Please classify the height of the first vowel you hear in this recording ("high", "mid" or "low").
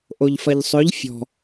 mid